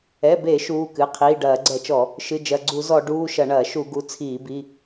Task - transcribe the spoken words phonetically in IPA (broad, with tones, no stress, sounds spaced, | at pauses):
ɛ˩˧˩ b e˧˩˧ ʃ uː˩˧˩ k ɨ˩˧˩ qʰ iː˩˧˩ ɖ ɐː˧˩˧ ɡ͡ǀ ɛ˧˩˧ t͡ʃ ɔ˧˩˧ | ʃ ɨ˩˧˩ d͡ʒ ɐ˩˧˩ ɡ͡ǀ u˧˩˧ z ɔ˧˩˧ ɖ uː˩˧˩ ʃ ɐ˧˩˧ ɳ ɐː˧˩˧ ʃ u˧˩˧ ɡ u˩˧˩ t͡sʰ iː˧˩˧ b i˩˧˩